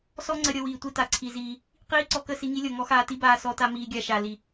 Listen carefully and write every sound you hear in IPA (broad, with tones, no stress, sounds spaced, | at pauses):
s ɔ˦ ŋ͡ǀ ə˧ ɾʲ ɤ˧ w iː˨ tʷ i˦ t a˨ ǀʰ i˧ z iː˧ | q iː˦ ǀ ɔ˧ k ə˦˨ s i˧ ŋ i˦ lʲ ɤ˨ ŋ ɔ˦ x aː˧ t i˦ b aː˧ s ɔ˧ t a˧ m iː˧ ɡʲ a˧ ʃ a˨ l i˨